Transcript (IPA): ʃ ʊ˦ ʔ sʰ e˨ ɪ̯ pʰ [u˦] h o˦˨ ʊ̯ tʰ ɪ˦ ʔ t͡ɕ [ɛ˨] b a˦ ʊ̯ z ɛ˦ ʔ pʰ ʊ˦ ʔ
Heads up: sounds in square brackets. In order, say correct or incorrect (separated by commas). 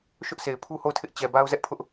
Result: correct, correct